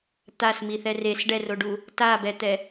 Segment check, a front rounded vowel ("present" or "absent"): absent